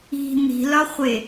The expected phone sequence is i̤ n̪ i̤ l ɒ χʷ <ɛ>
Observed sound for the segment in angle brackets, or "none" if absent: e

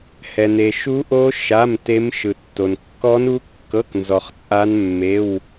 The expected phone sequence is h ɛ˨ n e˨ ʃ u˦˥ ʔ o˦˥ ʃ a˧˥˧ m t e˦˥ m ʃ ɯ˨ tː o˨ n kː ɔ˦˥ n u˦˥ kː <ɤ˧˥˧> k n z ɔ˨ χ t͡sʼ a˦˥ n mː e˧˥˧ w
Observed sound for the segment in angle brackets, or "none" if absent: ɤ˧˥˧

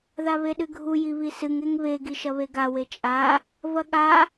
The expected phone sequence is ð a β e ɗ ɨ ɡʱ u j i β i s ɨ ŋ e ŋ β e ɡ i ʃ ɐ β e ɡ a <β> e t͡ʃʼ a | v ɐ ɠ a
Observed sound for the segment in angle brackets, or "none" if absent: w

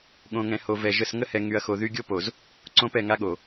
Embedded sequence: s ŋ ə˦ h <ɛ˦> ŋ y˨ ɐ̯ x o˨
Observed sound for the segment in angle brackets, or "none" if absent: ɛ˨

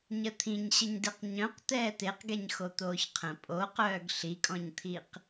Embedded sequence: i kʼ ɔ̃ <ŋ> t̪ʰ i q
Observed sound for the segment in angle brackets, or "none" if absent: ɲ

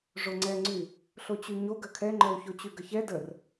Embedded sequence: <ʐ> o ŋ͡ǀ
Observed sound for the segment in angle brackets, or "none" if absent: ʐ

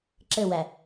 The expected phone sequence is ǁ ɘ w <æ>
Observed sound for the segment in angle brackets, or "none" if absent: æ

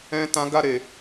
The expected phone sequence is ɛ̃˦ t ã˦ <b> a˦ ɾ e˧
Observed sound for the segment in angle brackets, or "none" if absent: ɡ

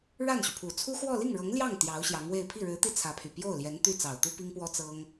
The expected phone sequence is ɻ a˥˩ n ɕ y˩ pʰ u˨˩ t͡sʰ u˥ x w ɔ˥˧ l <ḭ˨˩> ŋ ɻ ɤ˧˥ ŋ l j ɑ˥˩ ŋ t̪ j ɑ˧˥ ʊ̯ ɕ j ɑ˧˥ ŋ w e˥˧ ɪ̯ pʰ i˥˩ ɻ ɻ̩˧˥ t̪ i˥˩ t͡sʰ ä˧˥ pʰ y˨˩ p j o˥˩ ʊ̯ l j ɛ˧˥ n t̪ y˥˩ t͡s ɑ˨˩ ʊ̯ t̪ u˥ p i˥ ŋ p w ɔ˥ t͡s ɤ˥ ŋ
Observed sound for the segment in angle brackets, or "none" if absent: i˥˩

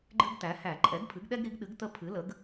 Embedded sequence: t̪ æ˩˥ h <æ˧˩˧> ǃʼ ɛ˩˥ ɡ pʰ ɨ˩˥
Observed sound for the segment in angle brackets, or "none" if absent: æ˧˩˧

